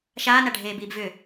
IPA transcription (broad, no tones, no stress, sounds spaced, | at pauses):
ʃ aː n a ɖʱ eː b iː b v ʏ